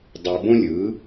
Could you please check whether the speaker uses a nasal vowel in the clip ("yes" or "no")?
yes